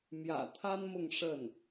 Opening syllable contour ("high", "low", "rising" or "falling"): low